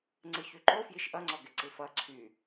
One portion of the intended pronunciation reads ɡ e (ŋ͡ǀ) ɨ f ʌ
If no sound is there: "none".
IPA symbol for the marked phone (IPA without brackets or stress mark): ǀ